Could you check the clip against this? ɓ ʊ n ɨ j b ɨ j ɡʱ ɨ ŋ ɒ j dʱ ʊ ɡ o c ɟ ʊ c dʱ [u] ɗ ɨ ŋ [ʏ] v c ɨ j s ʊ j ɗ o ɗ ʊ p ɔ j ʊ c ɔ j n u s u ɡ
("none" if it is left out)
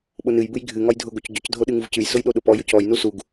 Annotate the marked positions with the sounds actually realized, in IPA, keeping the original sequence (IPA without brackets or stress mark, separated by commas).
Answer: o, u